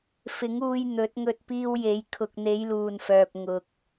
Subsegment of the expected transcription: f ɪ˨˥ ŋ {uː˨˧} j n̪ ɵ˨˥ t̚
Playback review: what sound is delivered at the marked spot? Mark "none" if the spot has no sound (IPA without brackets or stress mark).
uː˧